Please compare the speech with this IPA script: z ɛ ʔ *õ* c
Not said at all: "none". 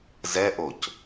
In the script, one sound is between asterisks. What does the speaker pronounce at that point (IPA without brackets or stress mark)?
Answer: o